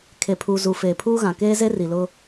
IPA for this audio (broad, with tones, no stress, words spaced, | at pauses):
kʰe˨pʰuː˨ zu˨feː˨pʰuː˦ɣã˨ keː˦ze˦ri˨lʊ˦